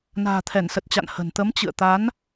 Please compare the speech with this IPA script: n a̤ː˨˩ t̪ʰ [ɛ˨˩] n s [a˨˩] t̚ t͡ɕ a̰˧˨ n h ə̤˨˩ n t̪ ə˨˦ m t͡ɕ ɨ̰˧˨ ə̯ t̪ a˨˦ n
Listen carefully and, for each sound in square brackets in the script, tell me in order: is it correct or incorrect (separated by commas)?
incorrect, incorrect